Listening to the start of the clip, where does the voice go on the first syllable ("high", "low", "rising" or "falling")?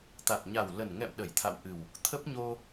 low